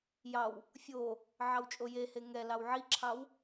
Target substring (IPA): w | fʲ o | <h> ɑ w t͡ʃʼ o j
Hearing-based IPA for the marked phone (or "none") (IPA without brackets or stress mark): ʕ